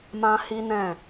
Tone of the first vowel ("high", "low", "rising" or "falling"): high